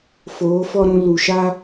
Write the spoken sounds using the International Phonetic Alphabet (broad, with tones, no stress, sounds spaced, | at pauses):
f oː˨˦ f ɔ˦ ɾ ũ˧ l u˨ ʃ a˦